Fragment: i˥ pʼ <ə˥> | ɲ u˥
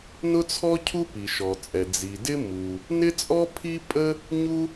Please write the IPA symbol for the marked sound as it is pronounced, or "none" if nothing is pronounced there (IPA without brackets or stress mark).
ə˥